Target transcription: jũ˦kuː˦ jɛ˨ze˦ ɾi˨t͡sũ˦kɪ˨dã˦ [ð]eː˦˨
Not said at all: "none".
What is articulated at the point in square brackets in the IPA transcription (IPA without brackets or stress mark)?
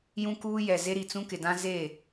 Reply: z